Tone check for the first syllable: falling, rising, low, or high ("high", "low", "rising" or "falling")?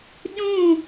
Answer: falling